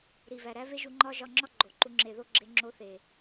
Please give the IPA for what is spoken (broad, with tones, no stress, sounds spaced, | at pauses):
ɾ i˨ v æ˨ ɾ æ˦ v e˦ ʒ u˧ ŋ͡ǃ ɒ˦ ʒ ɒ˧ ŋ͡ǁ ɒ˦ ɡ͡ǃ o˨ ǃ u˧ ŋ͡ǁ e˨ ð o˦ ɡ͡ǁ e˧ ŋ͡ǁ o˧ θ e˨